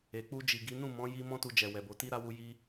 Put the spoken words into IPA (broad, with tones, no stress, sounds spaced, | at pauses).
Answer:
e˨ k͡p u˧ d͡ʒ i˨ ɡ i˨˦ n ũ˦˨ m ɔ̃˨˦ j i˦ m ɔ̃˦ t u˧ d͡ʒ ɛ˨ w ɛ˨ b o˨˦ t i˦ ɾ a˦ w u˧ j i˦